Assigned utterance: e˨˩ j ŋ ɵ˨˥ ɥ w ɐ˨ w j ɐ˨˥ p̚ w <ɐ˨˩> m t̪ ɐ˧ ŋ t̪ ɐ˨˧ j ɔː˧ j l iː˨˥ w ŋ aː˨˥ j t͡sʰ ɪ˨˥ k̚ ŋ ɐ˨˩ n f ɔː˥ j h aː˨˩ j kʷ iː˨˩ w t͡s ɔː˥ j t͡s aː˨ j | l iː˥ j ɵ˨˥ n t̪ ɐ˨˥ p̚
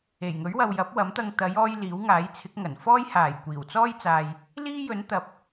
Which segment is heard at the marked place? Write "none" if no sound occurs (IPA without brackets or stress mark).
ɐ˨˥